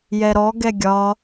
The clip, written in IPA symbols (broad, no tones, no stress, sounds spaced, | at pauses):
j ɛ ɾ ɔ ɡ ɛ ɡʲ ɒ